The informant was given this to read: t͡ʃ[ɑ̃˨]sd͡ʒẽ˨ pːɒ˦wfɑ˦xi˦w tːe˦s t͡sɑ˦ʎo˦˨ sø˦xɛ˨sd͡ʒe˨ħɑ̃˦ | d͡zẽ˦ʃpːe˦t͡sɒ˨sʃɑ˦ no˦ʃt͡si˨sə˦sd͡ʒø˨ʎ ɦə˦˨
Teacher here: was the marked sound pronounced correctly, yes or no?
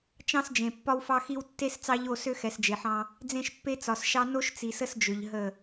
no